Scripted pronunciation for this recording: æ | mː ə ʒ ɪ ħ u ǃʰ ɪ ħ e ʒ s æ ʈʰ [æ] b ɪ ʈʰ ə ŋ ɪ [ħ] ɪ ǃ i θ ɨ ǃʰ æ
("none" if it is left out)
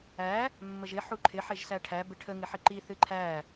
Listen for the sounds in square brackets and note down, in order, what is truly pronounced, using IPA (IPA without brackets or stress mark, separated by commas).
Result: æ, ħ